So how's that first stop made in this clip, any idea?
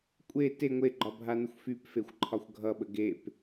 ejective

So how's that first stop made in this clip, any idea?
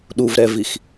implosive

